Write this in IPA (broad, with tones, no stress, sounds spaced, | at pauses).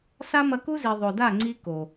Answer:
s a˦ m ɐ˧ k u˦ z i˨ ðˤ o˨ d a˦˨ ŋ͡ǀ i˦ k o˨